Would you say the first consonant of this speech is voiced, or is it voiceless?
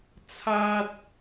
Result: voiceless